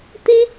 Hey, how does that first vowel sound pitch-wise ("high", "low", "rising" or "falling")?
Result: high